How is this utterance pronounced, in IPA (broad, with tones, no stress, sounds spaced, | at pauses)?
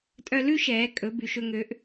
tʼ œ˧ l ʉ˦ ʃ ɛː˨˦ kʼ ɵ˨˦ b y˨ ʃ ɵ˧ ŋ ø˨˦ ʔ